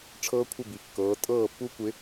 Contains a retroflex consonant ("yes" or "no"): yes